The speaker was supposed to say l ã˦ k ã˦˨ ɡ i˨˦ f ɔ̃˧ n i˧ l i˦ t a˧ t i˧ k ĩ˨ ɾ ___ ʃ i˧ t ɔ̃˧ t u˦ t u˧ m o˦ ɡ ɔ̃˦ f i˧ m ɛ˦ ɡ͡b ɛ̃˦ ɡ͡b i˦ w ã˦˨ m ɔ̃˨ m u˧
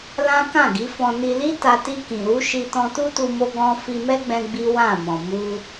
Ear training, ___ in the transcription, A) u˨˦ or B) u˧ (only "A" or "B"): A